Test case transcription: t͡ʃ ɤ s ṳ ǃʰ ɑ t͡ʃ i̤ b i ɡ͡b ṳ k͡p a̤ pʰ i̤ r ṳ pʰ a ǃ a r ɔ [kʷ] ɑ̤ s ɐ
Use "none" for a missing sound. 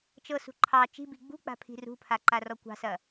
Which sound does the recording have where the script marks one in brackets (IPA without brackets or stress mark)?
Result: kʷ